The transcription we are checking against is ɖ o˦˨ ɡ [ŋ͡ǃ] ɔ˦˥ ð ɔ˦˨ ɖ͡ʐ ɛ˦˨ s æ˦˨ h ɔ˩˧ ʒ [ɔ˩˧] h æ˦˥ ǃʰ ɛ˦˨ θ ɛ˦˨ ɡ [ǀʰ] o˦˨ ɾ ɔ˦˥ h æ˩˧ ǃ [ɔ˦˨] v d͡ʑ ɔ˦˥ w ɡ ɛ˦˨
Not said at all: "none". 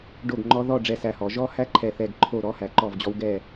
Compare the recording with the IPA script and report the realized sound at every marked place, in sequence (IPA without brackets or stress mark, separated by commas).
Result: ŋ͡ǃ, ɔ˦˥, ǃʰ, ɔ˦˨